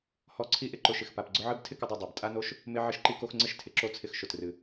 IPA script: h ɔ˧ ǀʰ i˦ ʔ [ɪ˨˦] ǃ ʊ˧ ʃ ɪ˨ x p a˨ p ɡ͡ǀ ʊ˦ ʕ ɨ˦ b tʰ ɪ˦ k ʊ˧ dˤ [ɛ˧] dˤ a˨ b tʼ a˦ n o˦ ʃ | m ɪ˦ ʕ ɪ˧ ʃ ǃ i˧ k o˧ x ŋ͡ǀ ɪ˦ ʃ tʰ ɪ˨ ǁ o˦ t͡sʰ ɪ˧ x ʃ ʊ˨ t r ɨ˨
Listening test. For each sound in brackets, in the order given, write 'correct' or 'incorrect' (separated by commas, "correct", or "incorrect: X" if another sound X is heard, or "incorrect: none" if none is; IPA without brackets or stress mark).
incorrect: ɪ˧, incorrect: ɛ˨